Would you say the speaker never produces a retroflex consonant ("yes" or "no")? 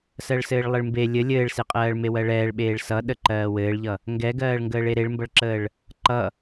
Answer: no